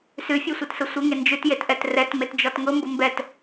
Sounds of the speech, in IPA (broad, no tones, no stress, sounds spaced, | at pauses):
s ʉ fʲ e sʷ ɛ t s ʊ sʷ ə ŋ e n d͡ʒ ʉ t j e t ʔ ɛ t r ɛ t m e t d͡ʒ ɔ t ŋ ʊ m b ʊ m b ɛ t